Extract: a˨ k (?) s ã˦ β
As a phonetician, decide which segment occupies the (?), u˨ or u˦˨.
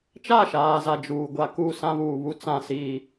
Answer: u˦˨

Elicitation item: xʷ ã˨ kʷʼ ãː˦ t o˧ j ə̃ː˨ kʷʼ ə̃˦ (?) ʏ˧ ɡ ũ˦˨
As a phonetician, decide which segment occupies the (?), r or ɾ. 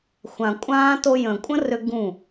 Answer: r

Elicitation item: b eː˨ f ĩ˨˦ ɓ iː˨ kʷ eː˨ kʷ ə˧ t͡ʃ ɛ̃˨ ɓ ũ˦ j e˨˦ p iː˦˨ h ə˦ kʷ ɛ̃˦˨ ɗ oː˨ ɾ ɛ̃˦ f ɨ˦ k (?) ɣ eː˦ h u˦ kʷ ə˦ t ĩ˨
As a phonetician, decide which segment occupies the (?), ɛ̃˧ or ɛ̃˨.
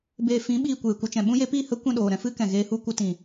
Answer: ɛ̃˨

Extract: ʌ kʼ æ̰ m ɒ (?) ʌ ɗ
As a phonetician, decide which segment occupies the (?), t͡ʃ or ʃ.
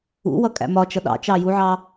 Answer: t͡ʃ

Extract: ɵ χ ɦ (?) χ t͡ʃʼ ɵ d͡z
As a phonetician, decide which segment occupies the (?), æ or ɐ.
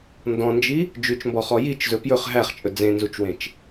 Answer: æ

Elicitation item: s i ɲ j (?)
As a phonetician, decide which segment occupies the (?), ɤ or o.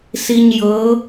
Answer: ɤ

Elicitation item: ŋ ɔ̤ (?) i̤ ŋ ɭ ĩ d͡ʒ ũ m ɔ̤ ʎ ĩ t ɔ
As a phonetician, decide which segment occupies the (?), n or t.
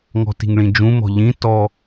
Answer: t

